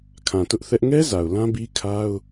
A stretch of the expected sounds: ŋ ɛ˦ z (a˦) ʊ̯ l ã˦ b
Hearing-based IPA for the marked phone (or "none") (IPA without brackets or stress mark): a˨